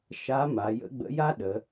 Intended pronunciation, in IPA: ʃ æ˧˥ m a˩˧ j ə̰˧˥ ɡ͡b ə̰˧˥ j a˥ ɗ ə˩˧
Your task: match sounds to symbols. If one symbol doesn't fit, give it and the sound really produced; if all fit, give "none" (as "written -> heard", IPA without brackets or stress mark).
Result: æ˧˥ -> a˧˥